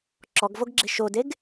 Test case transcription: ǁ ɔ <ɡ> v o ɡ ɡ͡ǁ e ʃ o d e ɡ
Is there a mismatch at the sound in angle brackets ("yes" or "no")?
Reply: no